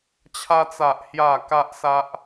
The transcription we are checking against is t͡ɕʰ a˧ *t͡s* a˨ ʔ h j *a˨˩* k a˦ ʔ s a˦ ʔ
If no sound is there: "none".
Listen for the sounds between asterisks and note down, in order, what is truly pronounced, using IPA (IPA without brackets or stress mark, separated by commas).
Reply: t͡s, a˥˧